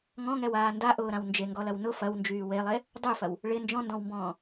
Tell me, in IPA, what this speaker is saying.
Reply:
ŋ ɔ̃ ŋ ɛ w aː n d a ʔ ʊː ɾ ã w n d͡ʒ e ŋ ɡ ɔ l ɐ w n ʊ f ɐ w n d͡ʒ yː w e lˠ e | dˤ y f ɐ w | ɭ ɪ n d͡ʒ ɔ̃ n d ɔ̃ w m b ɔ̃ː

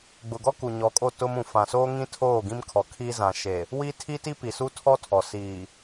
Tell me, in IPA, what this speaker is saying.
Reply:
ɡ͡b ʊ˨ ɡ ɔ˦ k u˨ ɲ ɔ˨˦ kʼ o˦˨ t ʊ˦ m ũ˨ f ã˨ s oː˦ ŋ ĩ˦ tʰ oː˦˨ ɡ ĩ˦ m kʰ ɔ˨ kʰ iː˦ z ã˨ ʃ e˨ | w i˦ tʰ i˦ t i˦ p i˨ s u˦ tʰ ɔ˦ tʰ ɔ˨ s iː˨

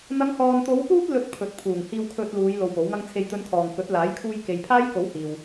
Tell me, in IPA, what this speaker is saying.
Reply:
n̪ ɐ˨˧ ŋ h ɔː˨ n t̪ o˨˧ w p uː˧ t̚ l ɵ˨ t̚ pʰ ɵ˨ t̚ pʰ uː˨˩ ŋ h iː˧ w kʰ ɵ˧ t̚ l uː˨˧ j l o˧ w p o˨˥ w ŋ ɐ˥ ŋ t͡sʰ e˧ j t̪ ɵ˧ n kʰ ɔː˨ ŋ k ɵ˨˥ t̚ l aː˨˥ j kʰ uː˧ j k e˨ j pʰ aː˥ j k o˨˥ w h iː˨ w

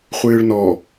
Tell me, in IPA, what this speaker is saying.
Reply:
χʷ ɨː ɭ n ɔ

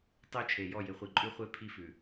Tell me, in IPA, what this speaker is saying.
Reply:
tˤ ɪ˦ u̯ t͡ʃʰ e˨ j ɔ˦˨ j ɪ˨ χʷ i˨ ǃʼ ʉ˦ χʷ e˦ pʰ i˦ f ʉ˨

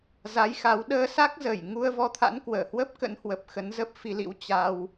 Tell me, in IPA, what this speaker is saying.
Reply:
z a˨˦ j x a˨˦ w ɗ əː˧ s a˦˥ k̚ z əː˧˩ j ŋ u˧ ə̯ v ɔ˧ t̪ʰ a̰˧˥ n k w əː˧˩ h w ə˦˥ p̚ k ə̰˧˥ n h w ə˨˩ p̚ x ə˨˦ n z ə˦˥ p̚ f i˧ l ḭ˧˥ w t͡ɕ a˧ w

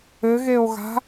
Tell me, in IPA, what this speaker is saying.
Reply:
ɘ ɣ e o̯ ɣ a̤

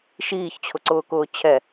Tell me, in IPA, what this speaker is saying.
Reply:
ʃ iː ç t͡ɕʰ ʊ ǀ ʊː k ʊː t͡ɕʰ ɛ

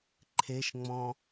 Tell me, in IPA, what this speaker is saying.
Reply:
ǃʰ e ʃ ŋ͡m ɔ̃

